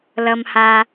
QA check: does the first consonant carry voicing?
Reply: yes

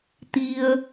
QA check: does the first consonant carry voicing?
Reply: no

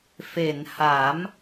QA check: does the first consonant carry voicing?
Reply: no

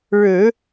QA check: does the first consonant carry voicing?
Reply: yes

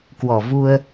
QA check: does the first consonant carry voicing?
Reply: no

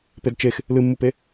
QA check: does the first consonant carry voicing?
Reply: no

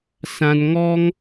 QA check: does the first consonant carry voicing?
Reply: no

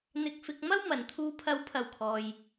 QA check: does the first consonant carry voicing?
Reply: yes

